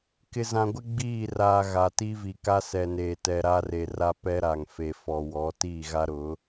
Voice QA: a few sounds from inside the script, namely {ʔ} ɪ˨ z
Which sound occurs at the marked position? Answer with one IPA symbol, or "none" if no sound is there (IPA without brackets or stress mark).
k